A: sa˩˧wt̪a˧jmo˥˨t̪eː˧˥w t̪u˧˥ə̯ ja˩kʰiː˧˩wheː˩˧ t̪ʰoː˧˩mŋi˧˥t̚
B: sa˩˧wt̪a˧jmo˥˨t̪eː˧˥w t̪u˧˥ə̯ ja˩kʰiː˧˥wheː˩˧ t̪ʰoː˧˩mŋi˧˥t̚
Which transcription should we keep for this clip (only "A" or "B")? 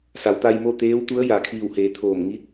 A